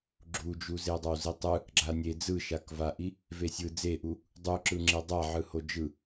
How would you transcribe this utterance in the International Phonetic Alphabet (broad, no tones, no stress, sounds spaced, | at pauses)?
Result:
ɡ͡ǁ u d͡ʒ u z e dˤ a w z i tˤ ɯ | ɡ͡ǁ a nʲ e d͡z ɯ ʃ a k v a ʔ i | v e sʲ ɯ d͡z e ʔ u | dˤ u ǁ ɯ ŋ͡ǁ e dˤ a ʕ ɯ h o d͡ʒ ɯ